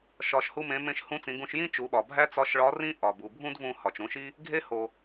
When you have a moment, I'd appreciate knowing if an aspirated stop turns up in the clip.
no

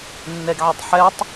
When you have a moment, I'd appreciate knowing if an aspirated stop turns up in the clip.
no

